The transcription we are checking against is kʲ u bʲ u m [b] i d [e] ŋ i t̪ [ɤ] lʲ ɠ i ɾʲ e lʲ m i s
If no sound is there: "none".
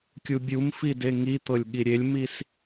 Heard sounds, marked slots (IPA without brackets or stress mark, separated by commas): f, e, ɤ